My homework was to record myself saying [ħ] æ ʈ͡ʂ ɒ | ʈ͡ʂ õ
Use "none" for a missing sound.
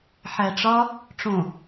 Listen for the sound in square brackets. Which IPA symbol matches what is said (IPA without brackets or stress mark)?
ħ